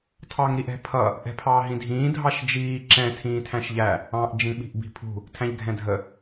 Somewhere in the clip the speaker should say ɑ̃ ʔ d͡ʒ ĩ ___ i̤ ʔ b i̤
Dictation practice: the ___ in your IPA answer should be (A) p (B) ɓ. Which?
B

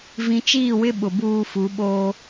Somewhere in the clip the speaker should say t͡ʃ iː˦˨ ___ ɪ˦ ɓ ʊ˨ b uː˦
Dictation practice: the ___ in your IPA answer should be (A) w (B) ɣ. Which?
A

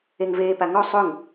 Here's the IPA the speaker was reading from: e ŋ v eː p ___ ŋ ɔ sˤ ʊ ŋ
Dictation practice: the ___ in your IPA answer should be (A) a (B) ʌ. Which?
A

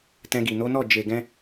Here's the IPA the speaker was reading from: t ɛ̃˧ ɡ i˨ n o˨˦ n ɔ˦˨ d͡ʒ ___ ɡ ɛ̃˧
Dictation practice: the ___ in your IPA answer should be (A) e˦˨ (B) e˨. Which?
B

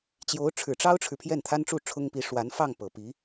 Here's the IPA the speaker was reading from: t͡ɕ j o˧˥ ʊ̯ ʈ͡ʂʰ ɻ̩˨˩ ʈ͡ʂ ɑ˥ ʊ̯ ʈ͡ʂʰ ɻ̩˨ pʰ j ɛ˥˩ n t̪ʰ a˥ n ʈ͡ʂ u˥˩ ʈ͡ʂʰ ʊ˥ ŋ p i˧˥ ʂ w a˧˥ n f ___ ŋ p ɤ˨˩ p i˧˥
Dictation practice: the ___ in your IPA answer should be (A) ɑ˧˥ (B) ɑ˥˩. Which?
B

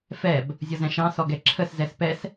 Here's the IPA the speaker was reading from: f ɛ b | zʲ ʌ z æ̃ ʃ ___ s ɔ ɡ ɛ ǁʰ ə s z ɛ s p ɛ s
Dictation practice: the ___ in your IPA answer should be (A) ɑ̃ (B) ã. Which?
A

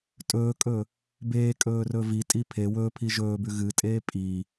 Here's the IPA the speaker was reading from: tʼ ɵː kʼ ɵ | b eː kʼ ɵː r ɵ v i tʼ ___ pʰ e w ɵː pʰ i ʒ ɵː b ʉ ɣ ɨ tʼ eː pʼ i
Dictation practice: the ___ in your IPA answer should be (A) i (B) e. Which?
A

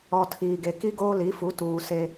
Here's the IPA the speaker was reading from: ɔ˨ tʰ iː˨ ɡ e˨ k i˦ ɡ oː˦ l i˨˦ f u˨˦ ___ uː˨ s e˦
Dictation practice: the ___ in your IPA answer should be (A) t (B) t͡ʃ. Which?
A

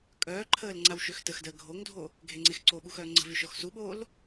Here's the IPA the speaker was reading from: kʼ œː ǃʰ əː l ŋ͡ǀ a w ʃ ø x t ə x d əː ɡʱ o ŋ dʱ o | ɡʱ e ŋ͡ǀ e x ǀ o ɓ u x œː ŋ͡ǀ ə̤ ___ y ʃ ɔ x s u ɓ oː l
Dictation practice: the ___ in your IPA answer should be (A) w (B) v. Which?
B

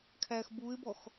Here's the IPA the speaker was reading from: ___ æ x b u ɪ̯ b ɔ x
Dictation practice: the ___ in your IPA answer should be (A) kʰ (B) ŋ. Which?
A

